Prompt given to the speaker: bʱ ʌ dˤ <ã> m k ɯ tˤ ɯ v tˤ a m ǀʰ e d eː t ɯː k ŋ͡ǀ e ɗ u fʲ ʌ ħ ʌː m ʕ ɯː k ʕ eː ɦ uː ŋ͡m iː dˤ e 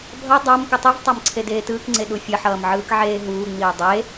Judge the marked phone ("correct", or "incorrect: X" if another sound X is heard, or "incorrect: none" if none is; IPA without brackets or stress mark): incorrect: a